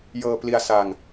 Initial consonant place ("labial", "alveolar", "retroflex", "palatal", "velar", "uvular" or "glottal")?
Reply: palatal